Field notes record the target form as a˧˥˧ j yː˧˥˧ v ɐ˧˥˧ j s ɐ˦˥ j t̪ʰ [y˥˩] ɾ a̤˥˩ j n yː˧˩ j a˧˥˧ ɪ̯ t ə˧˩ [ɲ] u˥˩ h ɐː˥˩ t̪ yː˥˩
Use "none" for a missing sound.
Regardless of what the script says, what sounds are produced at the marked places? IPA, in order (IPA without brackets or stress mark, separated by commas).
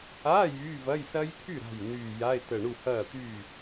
y˥˩, ɳ